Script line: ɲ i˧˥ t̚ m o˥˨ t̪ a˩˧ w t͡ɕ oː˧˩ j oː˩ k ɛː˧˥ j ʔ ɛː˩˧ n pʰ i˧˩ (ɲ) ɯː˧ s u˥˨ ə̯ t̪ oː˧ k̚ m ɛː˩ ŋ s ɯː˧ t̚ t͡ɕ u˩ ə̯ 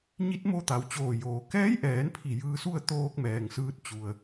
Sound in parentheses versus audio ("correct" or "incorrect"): incorrect